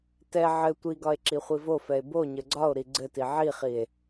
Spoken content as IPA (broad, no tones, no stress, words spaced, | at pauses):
tɛ ʕɘ tʷiɡɒe̯ ǁiχʷivofɛe̯ bo ɲɘɡ͡ǀɒo̯ɾi ɡ͡ǀɘti ʕiχie̯